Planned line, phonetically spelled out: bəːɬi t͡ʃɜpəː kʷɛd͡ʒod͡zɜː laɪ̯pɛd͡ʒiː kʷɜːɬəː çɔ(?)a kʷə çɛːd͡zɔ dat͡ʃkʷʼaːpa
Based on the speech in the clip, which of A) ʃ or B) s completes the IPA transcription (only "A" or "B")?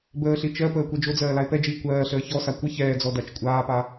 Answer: B